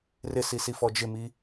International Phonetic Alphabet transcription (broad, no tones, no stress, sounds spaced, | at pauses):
r ɪ s i s i f ɔ d͡ʒ ɪ m i